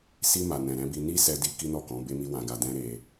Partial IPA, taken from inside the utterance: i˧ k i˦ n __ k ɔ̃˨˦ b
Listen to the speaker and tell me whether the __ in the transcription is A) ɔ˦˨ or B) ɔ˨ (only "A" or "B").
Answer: A